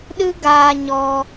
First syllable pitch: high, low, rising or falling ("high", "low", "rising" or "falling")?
high